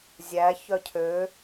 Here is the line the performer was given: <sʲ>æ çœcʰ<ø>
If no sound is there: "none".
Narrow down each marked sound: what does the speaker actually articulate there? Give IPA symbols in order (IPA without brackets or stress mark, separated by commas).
zʲ, ø